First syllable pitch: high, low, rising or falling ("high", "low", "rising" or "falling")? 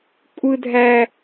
high